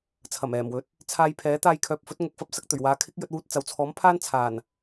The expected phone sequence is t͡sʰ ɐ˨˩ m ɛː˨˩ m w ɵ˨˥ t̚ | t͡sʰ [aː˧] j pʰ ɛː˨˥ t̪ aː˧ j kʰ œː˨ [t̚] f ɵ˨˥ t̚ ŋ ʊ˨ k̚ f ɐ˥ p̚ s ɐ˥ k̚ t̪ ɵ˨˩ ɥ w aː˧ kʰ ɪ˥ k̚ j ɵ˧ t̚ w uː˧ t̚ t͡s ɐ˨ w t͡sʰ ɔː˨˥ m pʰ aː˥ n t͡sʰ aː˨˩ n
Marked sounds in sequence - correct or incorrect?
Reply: correct, incorrect

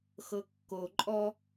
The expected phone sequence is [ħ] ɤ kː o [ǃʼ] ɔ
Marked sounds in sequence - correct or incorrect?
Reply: incorrect, correct

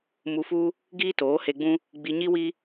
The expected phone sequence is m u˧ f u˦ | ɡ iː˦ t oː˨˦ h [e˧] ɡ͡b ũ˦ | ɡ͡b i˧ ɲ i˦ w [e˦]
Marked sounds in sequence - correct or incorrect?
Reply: correct, incorrect

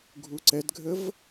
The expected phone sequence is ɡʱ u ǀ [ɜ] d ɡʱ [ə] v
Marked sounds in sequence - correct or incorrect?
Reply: incorrect, correct

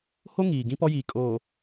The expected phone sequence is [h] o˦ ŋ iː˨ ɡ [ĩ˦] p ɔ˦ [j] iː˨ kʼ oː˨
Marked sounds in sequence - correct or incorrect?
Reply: correct, correct, correct

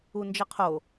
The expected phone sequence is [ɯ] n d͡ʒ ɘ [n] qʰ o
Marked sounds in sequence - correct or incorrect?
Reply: incorrect, incorrect

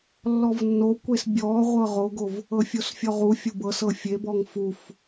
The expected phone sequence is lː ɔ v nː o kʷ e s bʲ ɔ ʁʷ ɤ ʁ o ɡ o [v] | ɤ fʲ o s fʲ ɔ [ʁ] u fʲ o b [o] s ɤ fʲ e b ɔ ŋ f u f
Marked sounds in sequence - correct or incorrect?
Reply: correct, correct, incorrect

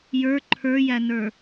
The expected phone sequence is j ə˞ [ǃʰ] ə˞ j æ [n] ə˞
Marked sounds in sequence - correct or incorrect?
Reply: correct, correct

